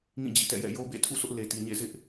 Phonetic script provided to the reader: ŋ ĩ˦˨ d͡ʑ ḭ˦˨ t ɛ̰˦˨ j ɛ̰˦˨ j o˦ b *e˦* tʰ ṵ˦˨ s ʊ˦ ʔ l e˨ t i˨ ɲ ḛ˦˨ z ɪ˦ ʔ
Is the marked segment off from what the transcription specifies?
yes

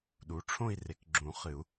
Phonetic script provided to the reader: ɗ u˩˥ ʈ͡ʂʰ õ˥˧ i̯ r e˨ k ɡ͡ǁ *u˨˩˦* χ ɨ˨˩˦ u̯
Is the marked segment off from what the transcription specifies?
yes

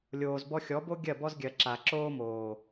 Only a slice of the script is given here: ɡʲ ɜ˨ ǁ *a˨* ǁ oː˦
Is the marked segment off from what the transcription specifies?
no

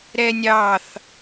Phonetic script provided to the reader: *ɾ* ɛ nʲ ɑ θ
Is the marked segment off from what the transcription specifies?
no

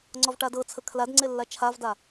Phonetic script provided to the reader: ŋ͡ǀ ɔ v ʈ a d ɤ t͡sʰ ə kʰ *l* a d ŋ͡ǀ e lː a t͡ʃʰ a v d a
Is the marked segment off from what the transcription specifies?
no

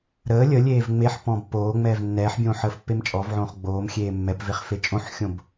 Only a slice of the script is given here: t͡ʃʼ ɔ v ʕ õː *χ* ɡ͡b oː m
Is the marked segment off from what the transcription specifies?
no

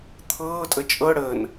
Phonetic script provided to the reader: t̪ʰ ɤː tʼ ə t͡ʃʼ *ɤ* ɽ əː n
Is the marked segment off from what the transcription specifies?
no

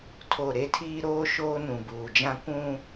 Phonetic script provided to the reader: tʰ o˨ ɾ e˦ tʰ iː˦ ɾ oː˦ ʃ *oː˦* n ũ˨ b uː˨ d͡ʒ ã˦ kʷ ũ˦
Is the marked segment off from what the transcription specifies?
no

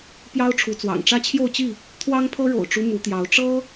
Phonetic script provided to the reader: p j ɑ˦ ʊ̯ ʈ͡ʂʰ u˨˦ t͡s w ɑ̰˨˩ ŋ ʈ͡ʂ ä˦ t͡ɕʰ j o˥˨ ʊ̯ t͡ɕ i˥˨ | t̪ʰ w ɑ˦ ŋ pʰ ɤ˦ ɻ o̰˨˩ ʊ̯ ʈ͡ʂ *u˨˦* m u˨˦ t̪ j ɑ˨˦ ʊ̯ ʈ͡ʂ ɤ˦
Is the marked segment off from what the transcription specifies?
yes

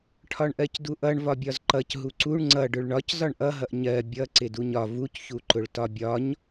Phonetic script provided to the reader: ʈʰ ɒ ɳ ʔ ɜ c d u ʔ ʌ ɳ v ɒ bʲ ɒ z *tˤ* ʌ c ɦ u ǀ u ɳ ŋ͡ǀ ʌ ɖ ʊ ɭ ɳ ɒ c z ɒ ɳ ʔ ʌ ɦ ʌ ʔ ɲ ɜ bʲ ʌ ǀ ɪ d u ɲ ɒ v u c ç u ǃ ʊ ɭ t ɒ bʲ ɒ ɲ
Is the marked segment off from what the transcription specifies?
yes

